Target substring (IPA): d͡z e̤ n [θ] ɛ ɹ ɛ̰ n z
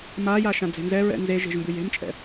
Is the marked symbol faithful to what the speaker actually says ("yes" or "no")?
no